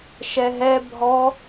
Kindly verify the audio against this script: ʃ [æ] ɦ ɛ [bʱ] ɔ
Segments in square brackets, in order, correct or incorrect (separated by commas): incorrect, correct